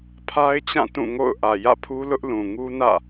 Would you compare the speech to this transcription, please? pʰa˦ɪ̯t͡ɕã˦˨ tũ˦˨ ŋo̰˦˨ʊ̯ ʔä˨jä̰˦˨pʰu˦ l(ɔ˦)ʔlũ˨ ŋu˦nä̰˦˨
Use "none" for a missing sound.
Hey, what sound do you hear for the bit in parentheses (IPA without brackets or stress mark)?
ʊ˦